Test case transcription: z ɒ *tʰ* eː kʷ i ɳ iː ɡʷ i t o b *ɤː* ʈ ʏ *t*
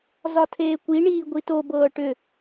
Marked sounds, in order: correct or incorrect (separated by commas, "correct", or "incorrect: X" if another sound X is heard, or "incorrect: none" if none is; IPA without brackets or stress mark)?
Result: correct, correct, incorrect: none